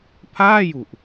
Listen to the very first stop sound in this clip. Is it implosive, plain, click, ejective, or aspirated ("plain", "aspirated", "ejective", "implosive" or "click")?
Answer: aspirated